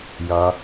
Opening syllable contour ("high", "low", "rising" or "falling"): low